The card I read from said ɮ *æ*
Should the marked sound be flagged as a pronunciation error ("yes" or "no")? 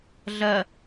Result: yes